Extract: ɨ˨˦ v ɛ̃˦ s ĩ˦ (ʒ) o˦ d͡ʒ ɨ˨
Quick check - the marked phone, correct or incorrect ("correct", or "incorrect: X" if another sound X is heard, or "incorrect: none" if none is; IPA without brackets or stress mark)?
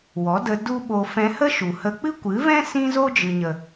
incorrect: z